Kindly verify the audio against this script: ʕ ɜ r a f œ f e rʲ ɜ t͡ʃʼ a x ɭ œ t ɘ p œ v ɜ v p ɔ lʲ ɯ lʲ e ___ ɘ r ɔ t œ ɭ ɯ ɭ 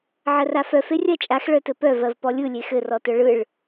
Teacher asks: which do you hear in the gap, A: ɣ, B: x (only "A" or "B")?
B